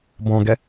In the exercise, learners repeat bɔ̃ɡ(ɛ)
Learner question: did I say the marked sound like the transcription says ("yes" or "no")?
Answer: yes